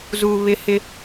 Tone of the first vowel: low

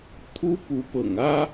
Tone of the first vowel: high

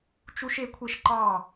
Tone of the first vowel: high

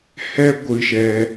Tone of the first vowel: high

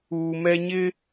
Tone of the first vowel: low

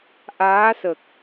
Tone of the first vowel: rising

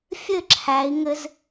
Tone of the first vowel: falling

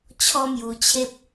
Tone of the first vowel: high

